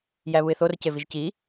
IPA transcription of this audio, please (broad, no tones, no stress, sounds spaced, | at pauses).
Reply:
j æ β u ɪ̯ θ o r c e v i ʒ c i